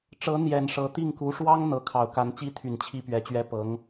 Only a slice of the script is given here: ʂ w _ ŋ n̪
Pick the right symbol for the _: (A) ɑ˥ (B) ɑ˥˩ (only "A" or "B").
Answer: A